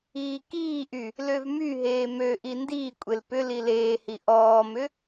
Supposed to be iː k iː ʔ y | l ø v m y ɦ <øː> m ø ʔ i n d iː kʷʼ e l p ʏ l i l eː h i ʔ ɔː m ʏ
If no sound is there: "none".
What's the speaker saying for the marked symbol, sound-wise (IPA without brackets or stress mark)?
eː